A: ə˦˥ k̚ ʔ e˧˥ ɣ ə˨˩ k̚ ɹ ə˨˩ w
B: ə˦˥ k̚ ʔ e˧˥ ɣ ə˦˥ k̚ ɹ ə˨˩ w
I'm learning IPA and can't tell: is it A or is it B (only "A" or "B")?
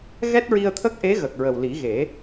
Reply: A